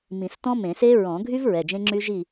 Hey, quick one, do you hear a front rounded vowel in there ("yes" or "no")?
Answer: yes